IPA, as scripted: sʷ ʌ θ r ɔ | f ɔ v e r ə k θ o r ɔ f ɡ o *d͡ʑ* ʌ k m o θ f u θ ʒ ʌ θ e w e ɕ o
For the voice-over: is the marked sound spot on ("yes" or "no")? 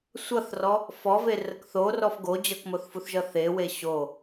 yes